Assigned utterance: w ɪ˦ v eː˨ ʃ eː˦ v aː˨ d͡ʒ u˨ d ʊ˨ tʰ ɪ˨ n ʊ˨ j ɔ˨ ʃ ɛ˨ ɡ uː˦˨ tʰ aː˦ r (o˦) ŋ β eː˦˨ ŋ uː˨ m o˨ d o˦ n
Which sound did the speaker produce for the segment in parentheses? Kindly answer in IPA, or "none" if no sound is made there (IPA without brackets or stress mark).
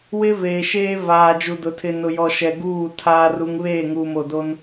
u˦